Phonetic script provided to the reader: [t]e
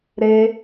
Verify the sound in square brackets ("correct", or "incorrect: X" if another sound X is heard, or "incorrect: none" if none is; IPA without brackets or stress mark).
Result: incorrect: ɾ